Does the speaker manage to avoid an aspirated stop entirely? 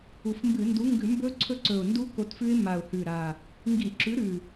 no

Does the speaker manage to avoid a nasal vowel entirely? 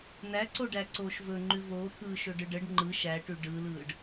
yes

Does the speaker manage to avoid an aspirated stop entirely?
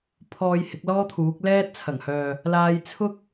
no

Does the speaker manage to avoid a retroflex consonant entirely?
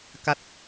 yes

